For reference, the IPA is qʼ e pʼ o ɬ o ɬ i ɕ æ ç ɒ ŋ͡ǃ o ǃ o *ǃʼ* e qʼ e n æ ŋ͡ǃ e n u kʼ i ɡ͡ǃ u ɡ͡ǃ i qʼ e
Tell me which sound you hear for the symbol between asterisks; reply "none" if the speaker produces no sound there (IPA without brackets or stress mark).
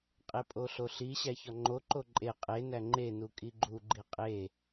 ǃʼ